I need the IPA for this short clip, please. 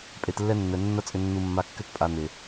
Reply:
pʼ e˧ t lː ɛ˦ nː ɛ˨ nː ɐ˦ t͡sʼ ʏ˧ nː u˧ mː a˧ kː ʏ˦ t pʼ a˧ n̪ ɪ˨

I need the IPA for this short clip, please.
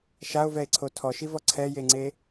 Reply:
ʃ a o̯ v ɛ e̯ ǀʰ o tʰ ɔ ʃ i v ɔ ǀʰ ɛ j e ŋ͡ǀ e

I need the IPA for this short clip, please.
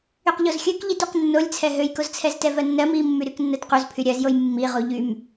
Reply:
y q ʎ o z xʲ ø k ʎ i t y q nː o lʲ t͡sʰ ɛ ɦ ø j k o z t͡sʰ ɛ z t ɛ v ɜ nː ɜ m i mː y ɾ y k nː ɜ t q u z pʰ y ɾʲ ɜ z j o j mː i ʁ u ʎ y m

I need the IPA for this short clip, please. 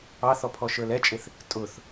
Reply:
ɑ θ ɔ pʰ ɔ ʃ ə˞ l ɛ t͡ʃʼ ɪ θ | tʼ ʊ θ

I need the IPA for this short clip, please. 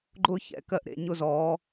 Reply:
ɡ͡ǃ ʊː˥˧ ç ɛ̰˧˥˧ k ɜ˥˩ ʔ ɾ ḛ˧˥˧ ɲ ʊ˥˧ z ɔː˨˦

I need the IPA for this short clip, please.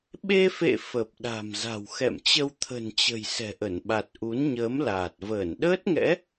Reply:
ɓ e˧ f ḛ˧˨ f ə˨˩ p̚ ɗ a̤˨˩ m z a̤˨˩ w x ɛ̰˧˨ m t͡ɕ ə˧ w t̪ʰ ə̤˨˩ n t͡ɕ ə̤˨˩ j s ɛ̤˨˩ ʔ ə˧˩ n ɓ a˨˩ t̚ ʔ u˨˦ n ɲ əː˨˦ m l aː˨˩ t̚ v əː˧˩ n ɗ əː˦˥ t̚ ŋ ɛ̰˧˥

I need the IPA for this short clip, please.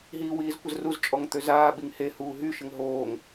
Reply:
ɦ iː w iː z kʷ ə z r u z t͡ʃʼ ɔ ŋ t̪ ø z aː ɓ i ŋ h e h uː ɦ y ʃ ə ŋ ɦ oː ŋ

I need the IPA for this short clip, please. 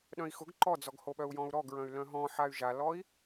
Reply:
ɗ œ̃ i̯ x ʊ ɡ ǃ ɔ d͡z ɔ ɡ h o ɓ œ u̯ j ɔ̃ u̯ ɾ ɔ ɡ ɹ œ̃ y̯ l œ̃ ɦ ɔ̃ ħ a y̯ ʒ a l ɔ i̯

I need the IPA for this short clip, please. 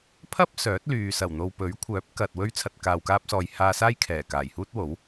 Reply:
pʰ ɐ˥ p̚ s œː˨˥ t̚ l yː˨ s ɐ˨˩ w n̪ o˨ w p ɵ˨˥ ɥ kʷʰ œː˨˥ p̚ k ɐ˨ t̚ w ɵ˧ ɥ t͡sʰ ɐ˨ t̚ k aː˨ w k aː˧ p̚ s ɔː˨ j h aː˧ s aː˥ j kʰ ɛː˨˩ k aː˨˩ j h uː˥ t̚ w o˨˥ w

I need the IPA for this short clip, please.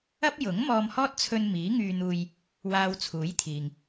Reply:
ɐ˥ p̚ j ʊ˨˥ ŋ m ɔː˧ m h ɔː˥ t̚ t͡sʰ ɵ˧ n m iː˨˥ ŋ yː˧ n̪ uː˨ j | w aː˧ w t͡sʰ uː˨˥ j t̪ʰ iː˨ ŋ

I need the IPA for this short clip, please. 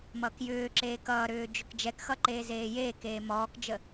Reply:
m ʌː k j ʏː ǁ eː k ʌː ɾ ʏː d͡ʒ ʏ k d͡ʒ ɛ k x ʌ ǃ eː z eː j eː k eː m ɔː k d͡ʒ ə

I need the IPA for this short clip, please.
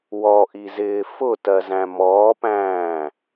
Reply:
w ɔ ʔ i z ɪː f ʊ t ɜ z æ̃ m ɔː p æ̃ː

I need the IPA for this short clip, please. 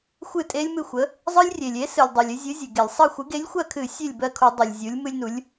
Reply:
xʷ ɨ˦˨ tʼ e˦ lʲ m ɨ˦˨ xʷ ə˨˥ | zˤ ɨ˦ lʲ rʲ e˩ lʲ e˨˥ s ɨ˩ lʲ dˤ ɜ˩ lʲ ɨ˦ zʲ ɨ˨˥ zʲ ɨ˩ ɡ e˧˩˧ lʲ sˤ ɜ˦˨ xʷ ɨ˨˥ ɡ e˨˥ lʲ xʷ ɜ˦˨ kʰ ɨ˧˩˧ sʲ e˦˨ lʲ b ɜ˦˨ kʰ u˧˩˧ dˤ u˩ lʲ zʲ u˨˥ lʲ m ɨ˦ lʲ n u˨˥ lʲ

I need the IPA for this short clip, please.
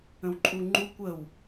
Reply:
ə̃ w ǃʼ u ŋ͡ǃ u kʷ ə w

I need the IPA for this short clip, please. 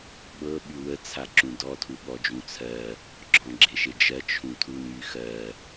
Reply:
ɓ ɤ ɓ y w ə t͡sʰ a ǁ ũ d ɔ tʰ u ɠ ɔ d͡ʒ ũ t͡sʰ ɜ | ɡ͡ǁ ɔ̃ ɡ͡ǁ e ʃ e d͡ʒ ɜ t͡ʃʰ ũ tʰ u n y x ɜ

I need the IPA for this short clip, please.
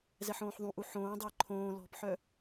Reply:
z ɛ ħ õː ħ ðˤ ũ ʔ u ħ õː dˤ əː ǃʰ õː l ɔ̤ p ħ œ

